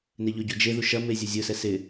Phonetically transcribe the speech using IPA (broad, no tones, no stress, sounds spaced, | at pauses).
n e ʎ ʊ ɟ u d͡ʒ e ð u ʃ ɐ m e zʲ u zʲ ʊ s ɛ s ɪ